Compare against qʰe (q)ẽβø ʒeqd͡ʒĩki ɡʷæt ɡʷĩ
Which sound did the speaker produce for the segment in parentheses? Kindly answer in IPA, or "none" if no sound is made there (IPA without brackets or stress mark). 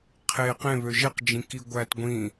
q